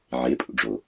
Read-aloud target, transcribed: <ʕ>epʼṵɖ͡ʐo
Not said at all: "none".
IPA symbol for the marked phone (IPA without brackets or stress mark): ʕ